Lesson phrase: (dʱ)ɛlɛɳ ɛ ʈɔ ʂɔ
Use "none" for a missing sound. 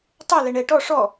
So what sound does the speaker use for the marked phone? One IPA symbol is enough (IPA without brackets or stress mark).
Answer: tˤ